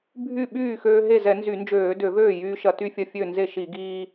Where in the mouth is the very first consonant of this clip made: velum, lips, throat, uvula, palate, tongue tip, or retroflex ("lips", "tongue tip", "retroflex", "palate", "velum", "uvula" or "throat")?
lips